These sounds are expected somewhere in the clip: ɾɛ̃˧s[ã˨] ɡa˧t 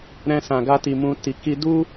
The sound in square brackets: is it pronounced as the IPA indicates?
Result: yes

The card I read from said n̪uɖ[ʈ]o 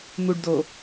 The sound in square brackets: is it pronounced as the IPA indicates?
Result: no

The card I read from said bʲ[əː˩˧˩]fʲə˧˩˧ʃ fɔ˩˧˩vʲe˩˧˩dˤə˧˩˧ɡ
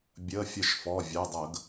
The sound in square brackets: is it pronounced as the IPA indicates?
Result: yes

